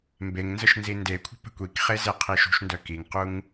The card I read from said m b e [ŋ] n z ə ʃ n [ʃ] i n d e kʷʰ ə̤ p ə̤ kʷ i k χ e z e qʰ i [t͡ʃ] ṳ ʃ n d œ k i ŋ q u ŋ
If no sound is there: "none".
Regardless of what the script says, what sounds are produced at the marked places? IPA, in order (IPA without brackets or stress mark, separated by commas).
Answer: ŋ, z, ʃ